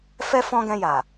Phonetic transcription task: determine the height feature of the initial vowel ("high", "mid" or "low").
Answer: mid